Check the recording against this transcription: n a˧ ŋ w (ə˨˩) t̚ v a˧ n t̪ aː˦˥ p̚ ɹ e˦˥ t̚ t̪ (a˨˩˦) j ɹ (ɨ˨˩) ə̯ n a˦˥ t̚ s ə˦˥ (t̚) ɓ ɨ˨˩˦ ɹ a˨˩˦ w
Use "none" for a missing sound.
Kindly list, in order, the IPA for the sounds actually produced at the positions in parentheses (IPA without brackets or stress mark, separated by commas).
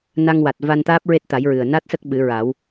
a˨˩, a˨˩˦, ɨ˨˩, k̚